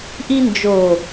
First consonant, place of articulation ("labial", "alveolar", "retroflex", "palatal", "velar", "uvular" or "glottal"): glottal